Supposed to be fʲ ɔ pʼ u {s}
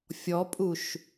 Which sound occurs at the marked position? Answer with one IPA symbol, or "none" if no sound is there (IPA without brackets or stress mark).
ʃ